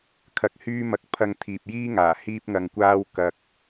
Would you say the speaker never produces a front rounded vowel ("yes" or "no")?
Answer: no